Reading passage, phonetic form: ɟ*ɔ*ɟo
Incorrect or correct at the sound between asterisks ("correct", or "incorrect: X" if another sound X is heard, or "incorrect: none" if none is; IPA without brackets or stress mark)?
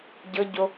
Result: incorrect: ɤ